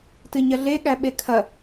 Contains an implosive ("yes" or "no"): yes